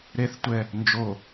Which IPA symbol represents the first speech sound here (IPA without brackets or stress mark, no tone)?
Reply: ɾ